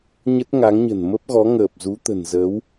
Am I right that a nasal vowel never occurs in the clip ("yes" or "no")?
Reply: yes